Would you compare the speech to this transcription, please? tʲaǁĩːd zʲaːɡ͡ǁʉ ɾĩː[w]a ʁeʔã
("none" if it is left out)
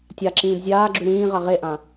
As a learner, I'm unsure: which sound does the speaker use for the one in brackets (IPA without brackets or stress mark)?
ʁ